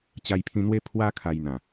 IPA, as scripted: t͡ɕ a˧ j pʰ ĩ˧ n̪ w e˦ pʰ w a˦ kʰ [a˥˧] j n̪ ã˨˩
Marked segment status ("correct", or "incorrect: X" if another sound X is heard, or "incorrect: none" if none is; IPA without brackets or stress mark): incorrect: a˧